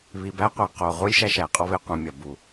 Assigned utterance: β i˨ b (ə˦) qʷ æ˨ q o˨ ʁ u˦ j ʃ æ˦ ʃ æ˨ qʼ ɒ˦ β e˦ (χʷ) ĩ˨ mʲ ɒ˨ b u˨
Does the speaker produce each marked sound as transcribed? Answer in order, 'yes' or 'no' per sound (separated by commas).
no, no